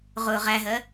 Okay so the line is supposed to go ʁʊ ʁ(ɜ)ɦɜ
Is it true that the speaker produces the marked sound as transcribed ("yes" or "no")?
no